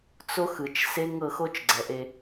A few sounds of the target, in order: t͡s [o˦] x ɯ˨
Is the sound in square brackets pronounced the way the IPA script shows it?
yes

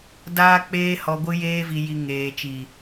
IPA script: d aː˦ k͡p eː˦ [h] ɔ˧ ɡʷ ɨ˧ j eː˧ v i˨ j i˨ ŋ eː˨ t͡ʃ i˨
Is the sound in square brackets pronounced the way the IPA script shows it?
yes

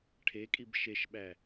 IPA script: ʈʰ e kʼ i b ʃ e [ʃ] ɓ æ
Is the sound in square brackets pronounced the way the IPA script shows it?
yes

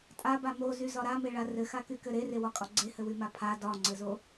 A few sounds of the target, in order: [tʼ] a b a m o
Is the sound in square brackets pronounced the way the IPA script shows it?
yes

